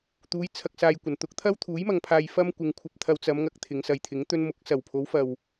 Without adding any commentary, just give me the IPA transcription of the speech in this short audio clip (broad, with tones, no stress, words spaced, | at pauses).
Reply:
t̪uː˨˧jt͡sʰɐ˨k̚saː˨j kʷɐ˨˩nt̪ʊ˥k̚ t̪ʰɐ˥wt̪ʰuː˨˥jmɐ˨ŋ pʰaː˧jfɐ˥mkʷɪ˨˧ŋkʷʰɐ˧p̚ t̪ʰɐ˧wt͡sɐ˨˧mŋɐ˨k̚ t̪ʰɪ˨˧ŋsɐ˨jt̪ʰɪ˨˥ŋt̪ɵ˥n mʊ˨˥k̚ sɐ˨˩wpʰo˨˥wfɐ˨w